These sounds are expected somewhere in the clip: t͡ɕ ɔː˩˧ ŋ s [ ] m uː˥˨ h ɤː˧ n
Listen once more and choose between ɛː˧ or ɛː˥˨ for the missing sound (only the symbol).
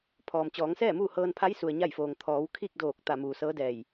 ɛː˥˨